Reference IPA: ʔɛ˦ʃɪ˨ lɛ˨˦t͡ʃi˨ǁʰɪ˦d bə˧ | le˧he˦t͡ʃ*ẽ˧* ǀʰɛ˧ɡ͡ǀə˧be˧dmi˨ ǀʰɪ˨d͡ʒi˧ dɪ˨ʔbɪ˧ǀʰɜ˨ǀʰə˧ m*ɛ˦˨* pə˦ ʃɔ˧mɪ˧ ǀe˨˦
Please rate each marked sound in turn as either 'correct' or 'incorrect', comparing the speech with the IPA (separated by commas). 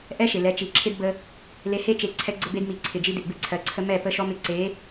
incorrect, correct